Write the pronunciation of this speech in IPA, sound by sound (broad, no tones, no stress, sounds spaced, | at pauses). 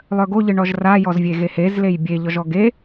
lˠ œ ɡ o ʎ ɨ ɳ ɔ ʒ r a j ɔ z vʲ e ɣ e h e z l e j bʲ e ʎ ɔ ʒ ɔ ɡ e